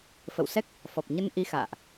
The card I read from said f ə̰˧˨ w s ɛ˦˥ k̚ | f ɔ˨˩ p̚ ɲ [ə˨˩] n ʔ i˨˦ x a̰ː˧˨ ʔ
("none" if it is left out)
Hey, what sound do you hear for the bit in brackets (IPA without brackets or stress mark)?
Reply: ə˧